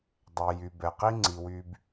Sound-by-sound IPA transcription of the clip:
dˤ ɛ˨ j y˨ b ɛ˨ q i˦ ŋ͡ǀ i˨ w y˧ b

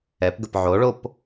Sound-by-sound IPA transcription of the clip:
ɛ p ɡ ə p ʕ o ɭ o p

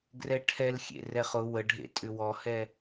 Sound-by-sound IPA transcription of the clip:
ɡ r ɛ ʈʰ ɛ l xʲ ḛ r ɛ χ ʊ w ə ɖʱ ḛ tʼ ʏ w ɔ h ɛ

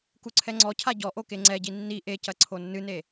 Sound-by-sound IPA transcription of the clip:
k u ǀʰ ɛ ŋ͡ǀ ɔ cʰ a ɟ ɔ ʔ o k e ŋ͡ǀ ɛ ɟ i nː i ʔ e c ɐ ǀʰ o nː ɨ n e

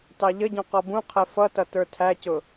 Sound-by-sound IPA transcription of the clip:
t ɑ ʎ ə ɟ ɔ̃ q ɔ b ũ qʰ ɛ f ʌ t ʌ t ə˞ tʰ æ c ʊ

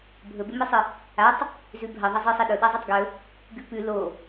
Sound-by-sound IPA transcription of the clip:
bʱ ɵ b e m i sˤ ɨ | a tˤ | z ʉ bʱ ɐ ðˤ ɐ zˤ ɨ sˤ i ɗ ɵ ɗ a zˤ e tˤ ɡ ɵ | ɡ ʉ p ʉ l o

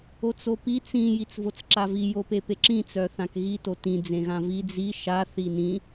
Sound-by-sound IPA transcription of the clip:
o t͡s o p i t͡s ĩ j i t͡s v o t͡s ǁ a v i j o p e p e ǁ ĩ t͡s œ θ ã k ɣ i t o t ĩ d͡z ẽ ɣ ã v i d͡z i ʃ a θ i n ĩ

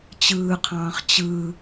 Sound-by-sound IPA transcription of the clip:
t͡ɕ ɯː qʰ ɑ̃ː χ t͡ɕ ɯ

